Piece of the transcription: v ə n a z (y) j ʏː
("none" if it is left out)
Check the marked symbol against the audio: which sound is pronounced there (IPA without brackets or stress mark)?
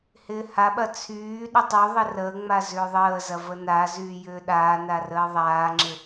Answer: yː